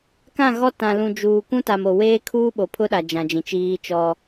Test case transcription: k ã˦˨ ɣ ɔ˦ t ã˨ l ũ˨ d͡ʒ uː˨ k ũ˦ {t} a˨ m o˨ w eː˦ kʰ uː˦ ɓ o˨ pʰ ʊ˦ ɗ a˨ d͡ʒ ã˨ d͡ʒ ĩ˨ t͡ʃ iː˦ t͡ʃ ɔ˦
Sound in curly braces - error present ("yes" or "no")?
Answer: no